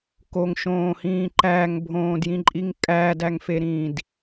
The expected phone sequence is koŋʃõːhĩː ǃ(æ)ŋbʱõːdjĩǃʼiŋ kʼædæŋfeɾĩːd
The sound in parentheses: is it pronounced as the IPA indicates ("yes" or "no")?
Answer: yes